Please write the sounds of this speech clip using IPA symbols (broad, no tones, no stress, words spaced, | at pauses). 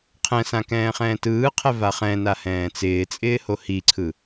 qʰɛ̃sã kɛ̃ːχɛ̃ːtɯːqʰɛ vaχɛ̃na hɛ̃ːt͡sɪːt͡sʼɪː hohiǀʰɯ